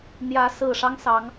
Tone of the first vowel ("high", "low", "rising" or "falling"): rising